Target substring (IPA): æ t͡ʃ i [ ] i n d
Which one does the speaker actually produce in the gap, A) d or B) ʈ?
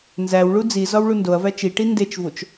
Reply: B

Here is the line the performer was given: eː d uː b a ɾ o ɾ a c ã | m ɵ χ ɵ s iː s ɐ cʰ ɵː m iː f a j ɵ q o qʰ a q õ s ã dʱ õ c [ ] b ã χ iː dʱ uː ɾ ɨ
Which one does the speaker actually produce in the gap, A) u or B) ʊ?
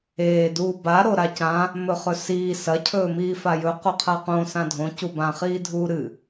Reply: A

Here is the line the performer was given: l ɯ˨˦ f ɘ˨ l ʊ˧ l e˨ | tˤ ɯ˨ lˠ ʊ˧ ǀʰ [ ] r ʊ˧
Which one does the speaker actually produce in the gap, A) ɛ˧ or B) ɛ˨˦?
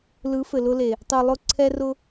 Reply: A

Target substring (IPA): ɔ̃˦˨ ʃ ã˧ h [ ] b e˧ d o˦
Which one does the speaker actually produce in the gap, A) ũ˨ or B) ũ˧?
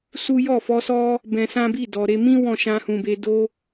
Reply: A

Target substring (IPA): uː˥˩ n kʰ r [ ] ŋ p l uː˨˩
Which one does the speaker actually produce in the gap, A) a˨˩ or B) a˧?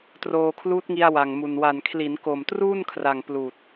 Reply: A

